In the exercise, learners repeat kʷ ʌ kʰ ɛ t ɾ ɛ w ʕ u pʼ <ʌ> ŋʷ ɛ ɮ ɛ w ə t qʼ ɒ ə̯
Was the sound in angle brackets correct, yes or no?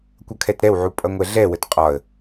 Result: yes